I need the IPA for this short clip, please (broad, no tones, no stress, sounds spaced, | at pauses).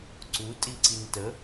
ǀ u tʼ i ǀ i n t ə